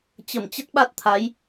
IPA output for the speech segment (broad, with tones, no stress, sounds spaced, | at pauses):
t͡ɕ ə˧˩ m t͡ɕ ə˦˥ t̚ ɓ a˦˥ t̚ t̪ʰ a˨˦ j